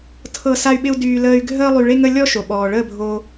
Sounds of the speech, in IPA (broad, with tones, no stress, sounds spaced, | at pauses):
tʰ ɤ˧ s a˦ y̯ ɓ ɪ˦ u̯ d yː˧ l əː˧ y̯ ɡʱ əː˦ lˠ y˧ ɭ e˦ ŋ ə˦ lʲ ɔ˦ ʃ o˨ ɓ ɔː˨ ɭ əː˦˨ bʱ o˧